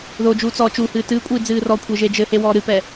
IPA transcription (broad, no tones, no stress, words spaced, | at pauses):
ðod͡ʒuː t͡sɔːt͡ʃuhɨː tɨːkʷʼiː d͡zɨːrɔkʷʰe ʒed͡ʒɘhe wɔːɾɨpɛ